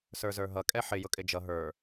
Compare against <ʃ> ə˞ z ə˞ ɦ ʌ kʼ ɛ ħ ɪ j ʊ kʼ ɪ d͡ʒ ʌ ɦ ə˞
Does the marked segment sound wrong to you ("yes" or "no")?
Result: yes